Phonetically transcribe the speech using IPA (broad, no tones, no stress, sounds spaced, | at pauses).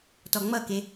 t ɔ ŋ͡m ʌ k e